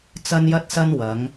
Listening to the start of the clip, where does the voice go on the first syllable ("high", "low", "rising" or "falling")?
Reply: high